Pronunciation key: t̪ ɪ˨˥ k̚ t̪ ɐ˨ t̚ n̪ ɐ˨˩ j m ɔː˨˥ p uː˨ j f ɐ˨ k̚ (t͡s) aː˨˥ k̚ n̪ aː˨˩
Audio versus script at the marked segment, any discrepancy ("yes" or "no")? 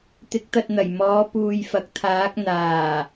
yes